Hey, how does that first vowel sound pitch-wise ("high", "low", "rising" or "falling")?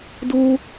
high